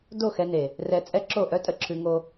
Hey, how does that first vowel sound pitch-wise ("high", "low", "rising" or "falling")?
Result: falling